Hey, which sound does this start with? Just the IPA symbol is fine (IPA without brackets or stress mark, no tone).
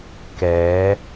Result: k